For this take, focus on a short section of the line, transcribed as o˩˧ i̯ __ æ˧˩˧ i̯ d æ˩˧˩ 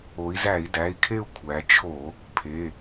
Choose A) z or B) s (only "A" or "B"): A